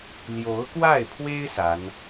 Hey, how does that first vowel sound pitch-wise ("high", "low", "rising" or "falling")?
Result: rising